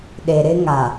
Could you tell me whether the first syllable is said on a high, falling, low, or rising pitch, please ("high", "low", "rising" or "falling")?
low